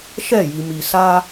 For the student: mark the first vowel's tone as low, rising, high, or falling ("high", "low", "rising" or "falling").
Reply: falling